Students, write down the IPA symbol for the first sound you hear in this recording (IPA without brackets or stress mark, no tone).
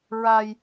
ɹ